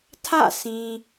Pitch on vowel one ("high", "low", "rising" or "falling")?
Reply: falling